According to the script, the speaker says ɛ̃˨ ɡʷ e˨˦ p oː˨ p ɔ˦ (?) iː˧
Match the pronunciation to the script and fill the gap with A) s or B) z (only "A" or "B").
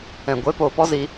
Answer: B